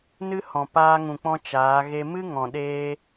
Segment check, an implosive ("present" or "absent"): present